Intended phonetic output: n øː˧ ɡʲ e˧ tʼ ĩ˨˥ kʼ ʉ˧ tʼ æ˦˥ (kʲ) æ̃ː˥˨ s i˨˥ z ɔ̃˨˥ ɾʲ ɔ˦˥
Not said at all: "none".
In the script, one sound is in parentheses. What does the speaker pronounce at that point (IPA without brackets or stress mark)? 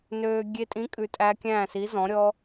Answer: kʲ